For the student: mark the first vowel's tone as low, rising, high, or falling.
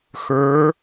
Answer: rising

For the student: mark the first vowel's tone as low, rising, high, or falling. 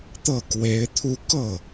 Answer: falling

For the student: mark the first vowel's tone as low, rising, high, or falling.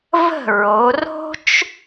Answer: falling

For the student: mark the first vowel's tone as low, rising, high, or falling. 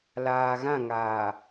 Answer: low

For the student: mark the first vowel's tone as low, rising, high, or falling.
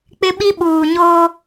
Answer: high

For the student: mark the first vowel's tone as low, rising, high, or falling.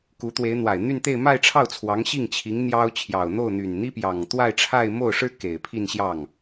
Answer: rising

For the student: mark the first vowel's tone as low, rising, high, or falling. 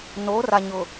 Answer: rising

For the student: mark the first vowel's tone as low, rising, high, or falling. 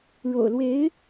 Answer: low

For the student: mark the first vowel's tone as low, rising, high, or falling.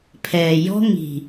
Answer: low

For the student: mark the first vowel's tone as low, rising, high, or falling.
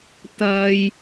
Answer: low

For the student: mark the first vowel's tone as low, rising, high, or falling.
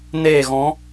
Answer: falling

